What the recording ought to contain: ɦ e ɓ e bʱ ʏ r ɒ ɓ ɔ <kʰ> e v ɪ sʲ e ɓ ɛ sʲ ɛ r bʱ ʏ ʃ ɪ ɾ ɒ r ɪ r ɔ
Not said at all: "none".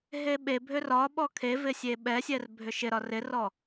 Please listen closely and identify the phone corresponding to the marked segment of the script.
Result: kʰ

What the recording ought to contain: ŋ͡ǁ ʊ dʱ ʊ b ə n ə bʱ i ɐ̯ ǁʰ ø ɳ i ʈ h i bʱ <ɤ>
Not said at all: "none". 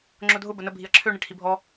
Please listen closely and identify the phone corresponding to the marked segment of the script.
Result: ɔ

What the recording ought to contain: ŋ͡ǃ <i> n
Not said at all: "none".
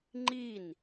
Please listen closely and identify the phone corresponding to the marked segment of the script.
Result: i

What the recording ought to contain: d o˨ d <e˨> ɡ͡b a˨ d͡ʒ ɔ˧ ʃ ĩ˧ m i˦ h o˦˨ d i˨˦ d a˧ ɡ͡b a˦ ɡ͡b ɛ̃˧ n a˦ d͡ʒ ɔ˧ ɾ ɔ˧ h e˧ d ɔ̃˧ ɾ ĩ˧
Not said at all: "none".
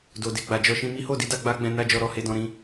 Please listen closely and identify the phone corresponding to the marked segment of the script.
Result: e˨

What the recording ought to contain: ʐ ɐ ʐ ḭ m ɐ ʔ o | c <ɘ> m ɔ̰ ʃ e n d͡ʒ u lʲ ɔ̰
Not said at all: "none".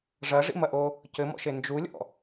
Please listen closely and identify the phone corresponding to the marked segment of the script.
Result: ɘ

